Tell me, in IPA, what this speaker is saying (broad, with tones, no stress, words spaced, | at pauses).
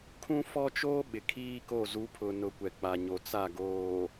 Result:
kʰũ˦fɔ˦t͡ʃoː˦ ɓɪ˨kʰiː˦ko˦˨ zu˨˦pʰʊ˨ nʊ˨˦kʷɛ˨k͡pa˨ɲo˨ t͡sa˦˨ɡoː˨